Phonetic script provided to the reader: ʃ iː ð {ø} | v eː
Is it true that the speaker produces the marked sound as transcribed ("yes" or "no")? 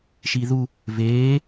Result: no